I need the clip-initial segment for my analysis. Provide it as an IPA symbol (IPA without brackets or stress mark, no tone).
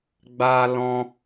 ɡ͡b